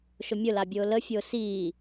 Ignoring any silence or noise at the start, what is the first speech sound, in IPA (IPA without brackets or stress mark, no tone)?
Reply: ʃ